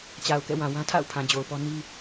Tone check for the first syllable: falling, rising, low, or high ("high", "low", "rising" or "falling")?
low